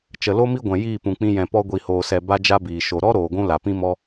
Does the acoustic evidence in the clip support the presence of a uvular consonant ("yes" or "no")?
no